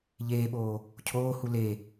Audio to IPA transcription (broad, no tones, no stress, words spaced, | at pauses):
ʎeːɓoː | cʰoːhu le